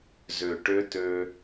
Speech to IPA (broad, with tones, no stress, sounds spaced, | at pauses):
z ø˨ ʈ ø˦ t ø˦